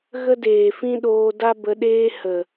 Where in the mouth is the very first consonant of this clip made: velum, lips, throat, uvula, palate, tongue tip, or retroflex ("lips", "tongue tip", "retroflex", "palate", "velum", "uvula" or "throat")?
velum